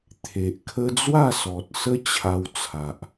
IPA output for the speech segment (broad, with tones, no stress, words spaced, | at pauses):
t̪ʰe˨ʔkʰə˦ d͡zwa˥˧sɔ˨t̚sə˦ t͡ɕʰa˧wt͡sʰa˨ʔ